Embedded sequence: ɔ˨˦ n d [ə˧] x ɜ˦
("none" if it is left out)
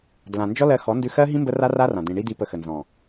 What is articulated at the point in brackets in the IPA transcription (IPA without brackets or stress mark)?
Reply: ʉ˧